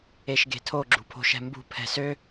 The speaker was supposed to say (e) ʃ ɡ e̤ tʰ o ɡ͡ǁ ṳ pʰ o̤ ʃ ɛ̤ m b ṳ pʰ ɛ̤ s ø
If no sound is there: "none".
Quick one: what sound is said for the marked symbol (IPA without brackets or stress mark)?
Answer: e